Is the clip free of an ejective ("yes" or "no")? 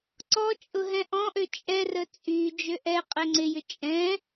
no